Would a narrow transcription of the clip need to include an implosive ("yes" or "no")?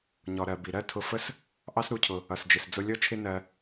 no